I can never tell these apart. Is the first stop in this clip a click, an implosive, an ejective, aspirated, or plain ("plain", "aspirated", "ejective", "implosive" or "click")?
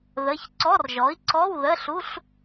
click